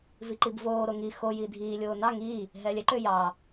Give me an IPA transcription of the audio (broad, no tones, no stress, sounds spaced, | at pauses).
v i ǃ i b v oː ɾ o ŋ i x o j iː dʱ iː lʲ oː n ɑ ŋ iː | ɦ ɛː lʲ ɛ ǃ ʏː j ɑː